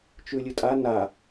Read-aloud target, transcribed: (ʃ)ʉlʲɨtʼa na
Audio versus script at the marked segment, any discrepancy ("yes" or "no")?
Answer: yes